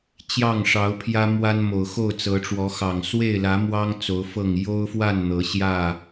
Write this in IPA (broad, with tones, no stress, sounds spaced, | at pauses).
t͡ɕ j ɑ˥˨ ŋ ʂ ɑ˨˦ ʊ̯ pʰ j ä˦ m w a˦ n m o˨˩ ʊ̯ x o˥˨ ʊ̯ t͡s ɤ˨˦ ʈ͡ʂ w ɔ˨˦ x ɑ˨˩ ŋ s w e˥˨ ɪ̯ l ä˨˦ m w ɑ˦ ŋ t͡s o˨˦ ʊ̯ f ɤ˥˨ ŋ j o˦ ʊ̯ f w a˥˨ n n̪ ɤ˨˦ ɕ j ä˥˨